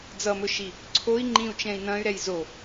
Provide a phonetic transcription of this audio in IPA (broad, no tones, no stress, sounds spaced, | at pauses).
d͡z ʌ m ɵ ʃ i | ǀʰ o i̯ ŋ͡ǃ ĩ u̯ t͡ʃ ɛ̃ i̯ n ɐ̃ y̯ ɾ ɛ j z o